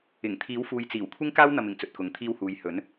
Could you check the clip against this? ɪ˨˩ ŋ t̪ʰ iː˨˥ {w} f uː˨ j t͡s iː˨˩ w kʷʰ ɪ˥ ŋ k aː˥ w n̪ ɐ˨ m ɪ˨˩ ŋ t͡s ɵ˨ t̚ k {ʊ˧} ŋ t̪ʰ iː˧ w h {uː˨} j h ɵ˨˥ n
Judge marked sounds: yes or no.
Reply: yes, no, yes

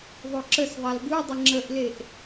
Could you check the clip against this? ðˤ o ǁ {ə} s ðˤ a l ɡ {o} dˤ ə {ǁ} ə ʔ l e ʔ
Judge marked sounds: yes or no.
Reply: yes, no, no

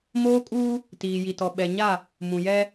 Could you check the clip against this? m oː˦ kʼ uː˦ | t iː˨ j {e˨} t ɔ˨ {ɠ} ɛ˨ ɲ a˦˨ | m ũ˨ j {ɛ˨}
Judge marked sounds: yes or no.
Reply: no, no, no

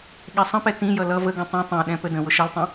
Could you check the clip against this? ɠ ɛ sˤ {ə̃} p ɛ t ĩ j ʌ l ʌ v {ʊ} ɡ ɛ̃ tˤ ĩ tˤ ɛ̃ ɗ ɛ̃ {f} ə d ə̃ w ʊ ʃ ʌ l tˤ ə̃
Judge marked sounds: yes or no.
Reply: yes, no, no

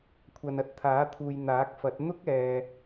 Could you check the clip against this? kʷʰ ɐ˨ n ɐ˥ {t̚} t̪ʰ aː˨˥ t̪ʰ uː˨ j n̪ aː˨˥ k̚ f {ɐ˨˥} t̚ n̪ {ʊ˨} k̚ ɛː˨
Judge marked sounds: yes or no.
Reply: yes, yes, no

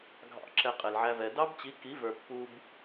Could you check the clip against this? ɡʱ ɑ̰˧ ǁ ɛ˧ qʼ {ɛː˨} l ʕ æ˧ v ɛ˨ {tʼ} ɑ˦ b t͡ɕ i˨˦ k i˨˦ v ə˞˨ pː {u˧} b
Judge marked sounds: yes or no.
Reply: no, no, yes

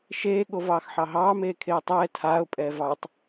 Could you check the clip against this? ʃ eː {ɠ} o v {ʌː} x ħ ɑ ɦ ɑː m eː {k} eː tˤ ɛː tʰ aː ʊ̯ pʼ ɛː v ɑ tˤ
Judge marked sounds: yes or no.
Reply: yes, no, no

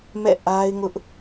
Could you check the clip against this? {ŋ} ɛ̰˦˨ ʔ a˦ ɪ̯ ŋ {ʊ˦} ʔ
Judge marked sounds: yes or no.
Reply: no, yes

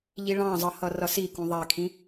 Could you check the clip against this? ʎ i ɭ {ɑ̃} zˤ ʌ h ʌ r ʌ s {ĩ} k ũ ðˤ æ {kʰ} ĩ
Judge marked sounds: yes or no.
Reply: yes, no, yes

